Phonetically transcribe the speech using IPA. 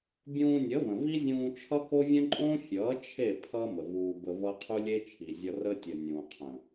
bʲ ũː˧ nʲ ə˨˦ v ə̃˨ v i˦ zʲ ũː˧ t͡ʃʰ ʌ˦ k o˦ vʲ ə̃˦ ǃʼ õ˦ fʲ ʌː˨˦ t͡ʃʰ e˦˨ pʰ ʌ˦ m ə˨ v uː˧ b ə˧ v ʌ˦ qʰ u˦ lʲ e˦ t͡ʃʰ i˨ zʲ ʌ˧ r ə˦ tʲ ə˨ nʲ ũː˨ qʰ ə̃˨

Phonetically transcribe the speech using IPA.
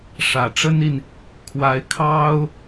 ʂ ä˨˩ ʈ͡ʂ ə˥ n i˨ n | kʰ w a˧˥ ɪ̯ kʰ ɑ˥ ʊ̯

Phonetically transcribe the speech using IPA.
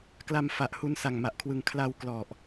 k l a˧ m f a˨˩ ʔ h u˧ n s a˨˩ ŋ m a˨˩ ʔ kʰ w ɯ˨˩ ŋ kʰ l a˧ w k l ɔ˨˩ ʔ

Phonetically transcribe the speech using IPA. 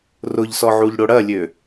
r ʊ ʎ s ɔ ʕ u ʎ ɽ o ɽ ɐ lʲ ø

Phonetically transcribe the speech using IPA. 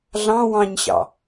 ɮ ɑ̃ w ɑ̃ ɲ ɕ ɑ̰

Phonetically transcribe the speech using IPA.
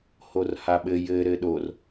h o r h a ɓ ɘ j ɘ ɾ ɘ ɗ o r

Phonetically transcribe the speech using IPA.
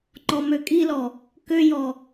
ŋ͡ǃ ɔ m ø kʼ i l ɔ | k ø j ɔ

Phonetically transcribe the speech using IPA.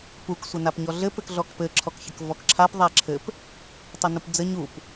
p u k sʷ ɘ n a p ɲ ɔ ɮ ɘ p ɘ k ɮ ɔ k p ɘ ǁʰ ɔ k ç ɘ k v ɔ k ǁʰ a p ðˤ a ǁʰ ɘ p | tˤ ə n u p d͡z ə ɲ u p

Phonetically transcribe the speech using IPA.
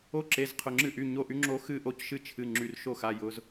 o˦ ǁ e˩˧˩ z qʰ ʊ˩˧˩ ŋ͡ǁ ɨ˦˨ ʔ y˩˧˩ ɲ o˦˨ ʔ y˦ ŋ͡ǁ o˦ x ɨ˦˨ ʔ o˦˨ c ʃ ɨ˦ t͡ʃʰ ɨ˩˧˩ ŋ͡ǁ y˩˧˩ r ʃ o˦˨ x a˩˧˩ j ʊ˩˧˩ z

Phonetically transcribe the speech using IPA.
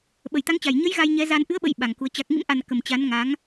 ɓ ə˨˩ j t̪ a˨˦ ŋ t͡ɕ a˨˩ j ɲ ə˨˦ j ɣ a˧ j ɲ ɛ˨˦ z a˧ n ʔ ɨ˨˦ ə̯ ɓ ə̰˧˨ j ɓ a˨˩ ŋ k u˨˦ ə̯ t͡ɕ a˨˩ k̚ ŋ ḭ˧˥ m ʔ a˨˩ n k ə˨˩ m t͡ɕ a˨˦ n ŋ a˨˦ ŋ

